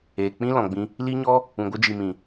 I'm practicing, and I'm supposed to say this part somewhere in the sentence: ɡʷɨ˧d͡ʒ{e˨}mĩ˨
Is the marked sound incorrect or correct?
incorrect